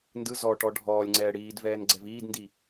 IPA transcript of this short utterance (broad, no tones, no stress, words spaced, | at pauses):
ndɯ zɔʈɔ ɖʱɔːlʲŋ͡ǀɛː ɽiːdvɛːn ɡ͡ǀɛviːdndi